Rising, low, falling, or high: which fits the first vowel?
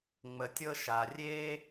low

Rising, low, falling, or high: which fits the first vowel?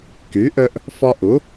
rising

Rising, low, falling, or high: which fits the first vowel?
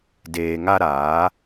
low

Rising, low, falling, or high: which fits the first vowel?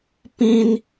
high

